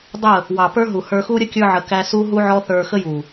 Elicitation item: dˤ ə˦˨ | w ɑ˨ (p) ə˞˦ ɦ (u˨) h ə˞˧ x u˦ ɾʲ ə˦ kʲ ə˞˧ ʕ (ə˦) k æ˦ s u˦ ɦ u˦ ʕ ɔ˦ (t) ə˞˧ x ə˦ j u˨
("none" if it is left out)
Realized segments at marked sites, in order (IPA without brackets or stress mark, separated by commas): p, u˨, ə˨, θ